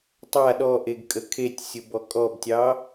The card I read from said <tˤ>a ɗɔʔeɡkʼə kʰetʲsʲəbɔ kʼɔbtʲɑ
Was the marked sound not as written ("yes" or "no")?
no